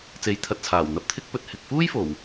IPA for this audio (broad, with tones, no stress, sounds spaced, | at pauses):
t͡s e˨˧ j t̪ʰ ɐ˨ t̚ t͡sʰ aː˨˩ w n̪ ɐ˧ p̚ t̪ʰ ɪ˥ k̚ p ɵ˧ t̚ h ɪ˨ k̚ f uː˥ j f o˨˩ w